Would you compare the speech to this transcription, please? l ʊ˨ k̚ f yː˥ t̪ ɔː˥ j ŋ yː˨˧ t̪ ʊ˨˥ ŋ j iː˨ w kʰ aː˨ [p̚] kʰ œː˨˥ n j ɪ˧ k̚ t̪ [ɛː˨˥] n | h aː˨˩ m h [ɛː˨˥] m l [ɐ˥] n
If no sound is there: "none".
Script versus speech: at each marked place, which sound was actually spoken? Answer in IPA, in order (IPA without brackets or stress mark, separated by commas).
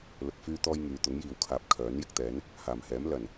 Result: p̚, ɛː˨˥, ɛː˨˥, ɐ˨˩